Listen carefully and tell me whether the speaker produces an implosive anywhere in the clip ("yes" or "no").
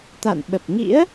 yes